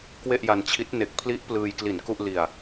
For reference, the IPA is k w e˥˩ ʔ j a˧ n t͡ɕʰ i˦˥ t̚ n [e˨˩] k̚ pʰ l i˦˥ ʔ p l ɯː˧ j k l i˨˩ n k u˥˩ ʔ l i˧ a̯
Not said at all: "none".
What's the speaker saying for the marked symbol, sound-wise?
e˨˩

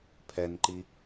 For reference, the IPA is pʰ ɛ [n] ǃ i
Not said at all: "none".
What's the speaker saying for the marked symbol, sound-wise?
n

